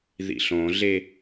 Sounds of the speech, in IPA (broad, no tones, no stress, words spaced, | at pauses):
ðḭɬõɮe